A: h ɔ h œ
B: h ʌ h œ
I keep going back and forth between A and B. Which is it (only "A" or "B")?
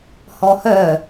A